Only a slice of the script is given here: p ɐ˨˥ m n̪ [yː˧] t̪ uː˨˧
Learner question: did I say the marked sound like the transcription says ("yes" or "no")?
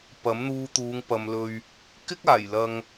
no